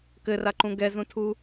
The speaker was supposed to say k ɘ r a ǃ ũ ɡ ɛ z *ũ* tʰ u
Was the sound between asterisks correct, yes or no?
yes